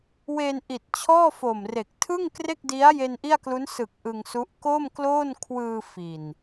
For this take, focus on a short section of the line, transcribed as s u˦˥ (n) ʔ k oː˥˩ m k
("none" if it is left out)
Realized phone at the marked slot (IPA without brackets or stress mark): none